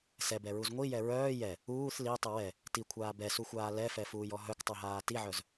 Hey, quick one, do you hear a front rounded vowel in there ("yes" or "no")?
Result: yes